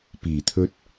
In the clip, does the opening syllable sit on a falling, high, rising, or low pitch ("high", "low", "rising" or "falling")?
low